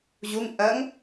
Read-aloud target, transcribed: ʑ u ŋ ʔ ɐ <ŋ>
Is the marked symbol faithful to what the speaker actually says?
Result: yes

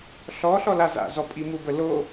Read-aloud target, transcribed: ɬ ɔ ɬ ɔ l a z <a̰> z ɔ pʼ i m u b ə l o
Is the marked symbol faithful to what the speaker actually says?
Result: yes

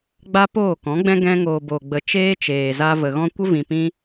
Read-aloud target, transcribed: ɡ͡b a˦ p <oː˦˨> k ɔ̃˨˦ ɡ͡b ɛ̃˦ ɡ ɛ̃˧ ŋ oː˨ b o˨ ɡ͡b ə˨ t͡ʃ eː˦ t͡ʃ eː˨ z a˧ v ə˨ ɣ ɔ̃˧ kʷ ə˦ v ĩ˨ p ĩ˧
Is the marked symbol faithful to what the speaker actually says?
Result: yes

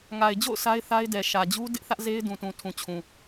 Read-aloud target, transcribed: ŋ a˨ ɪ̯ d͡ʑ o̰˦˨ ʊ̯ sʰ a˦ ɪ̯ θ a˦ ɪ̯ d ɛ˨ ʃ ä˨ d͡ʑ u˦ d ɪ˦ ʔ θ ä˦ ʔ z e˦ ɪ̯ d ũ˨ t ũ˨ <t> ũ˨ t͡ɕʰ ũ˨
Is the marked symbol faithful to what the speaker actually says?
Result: no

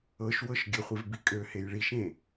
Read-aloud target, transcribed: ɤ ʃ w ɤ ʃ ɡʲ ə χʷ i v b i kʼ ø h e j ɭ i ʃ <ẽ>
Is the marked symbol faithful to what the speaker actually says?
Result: yes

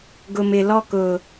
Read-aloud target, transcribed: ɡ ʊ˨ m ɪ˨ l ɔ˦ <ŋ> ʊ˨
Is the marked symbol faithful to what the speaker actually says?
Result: no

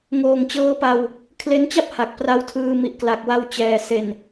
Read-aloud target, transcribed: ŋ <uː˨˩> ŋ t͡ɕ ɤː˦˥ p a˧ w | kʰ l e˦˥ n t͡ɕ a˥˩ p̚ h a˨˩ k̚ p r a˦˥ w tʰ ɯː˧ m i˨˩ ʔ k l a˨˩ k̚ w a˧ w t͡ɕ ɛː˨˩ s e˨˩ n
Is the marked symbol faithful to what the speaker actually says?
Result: no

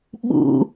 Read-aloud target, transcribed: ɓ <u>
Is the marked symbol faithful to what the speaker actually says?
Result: no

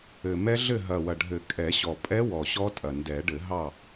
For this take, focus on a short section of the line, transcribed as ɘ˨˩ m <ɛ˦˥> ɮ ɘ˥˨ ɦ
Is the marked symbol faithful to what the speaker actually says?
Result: yes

